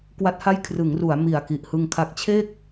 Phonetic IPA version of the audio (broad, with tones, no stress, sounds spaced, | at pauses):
k w a˦˥ t̚ h a˥˩ j kʰ r ɯ˩˦ ŋ r u˩˦ a̯ m i˨˩ a̯ k i˨˩ ʔ h ɯ˧ ŋ kʰ a˦˥ k̚ t͡ɕʰ e˥˩ k̚